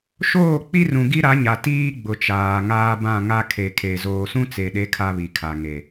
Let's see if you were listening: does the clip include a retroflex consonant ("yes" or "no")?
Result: no